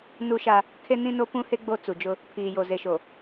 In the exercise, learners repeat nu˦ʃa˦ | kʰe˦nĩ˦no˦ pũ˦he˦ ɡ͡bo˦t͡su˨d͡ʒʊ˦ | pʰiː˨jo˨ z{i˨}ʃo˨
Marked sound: incorrect: e˨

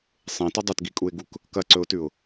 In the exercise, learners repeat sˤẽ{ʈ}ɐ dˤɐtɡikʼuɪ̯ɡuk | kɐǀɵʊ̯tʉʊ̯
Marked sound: incorrect: t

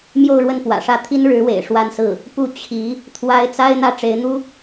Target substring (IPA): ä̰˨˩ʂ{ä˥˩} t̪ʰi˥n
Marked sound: correct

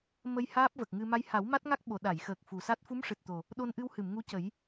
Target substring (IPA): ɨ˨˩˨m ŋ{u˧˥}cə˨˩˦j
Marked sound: correct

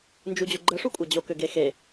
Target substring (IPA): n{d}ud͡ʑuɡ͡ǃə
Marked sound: incorrect: d͡ʒ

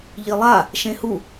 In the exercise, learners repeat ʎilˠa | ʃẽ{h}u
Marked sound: correct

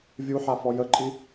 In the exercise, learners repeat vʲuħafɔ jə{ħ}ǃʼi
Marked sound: incorrect: none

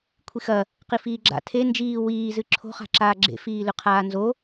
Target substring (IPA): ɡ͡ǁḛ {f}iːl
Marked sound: correct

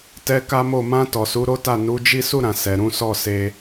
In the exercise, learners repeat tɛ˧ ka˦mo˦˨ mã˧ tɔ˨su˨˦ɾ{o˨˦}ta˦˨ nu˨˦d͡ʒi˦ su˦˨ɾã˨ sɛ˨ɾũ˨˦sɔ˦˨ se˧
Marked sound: incorrect: o˦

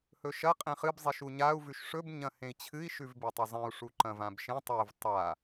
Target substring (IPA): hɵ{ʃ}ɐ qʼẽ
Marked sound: correct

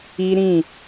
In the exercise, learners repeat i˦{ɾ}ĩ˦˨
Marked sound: correct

